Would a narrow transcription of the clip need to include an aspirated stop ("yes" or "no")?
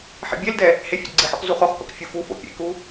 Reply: no